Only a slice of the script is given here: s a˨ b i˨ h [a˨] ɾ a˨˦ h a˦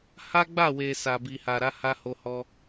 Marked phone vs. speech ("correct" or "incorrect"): correct